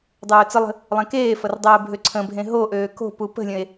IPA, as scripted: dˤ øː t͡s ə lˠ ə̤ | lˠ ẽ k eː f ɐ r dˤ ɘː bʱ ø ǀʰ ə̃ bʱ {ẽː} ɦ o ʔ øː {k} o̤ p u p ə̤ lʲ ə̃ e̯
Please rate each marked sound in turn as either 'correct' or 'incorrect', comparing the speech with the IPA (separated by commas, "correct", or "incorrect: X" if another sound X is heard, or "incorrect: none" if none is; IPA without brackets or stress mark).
incorrect: ẽ, correct